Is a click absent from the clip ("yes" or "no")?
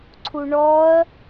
no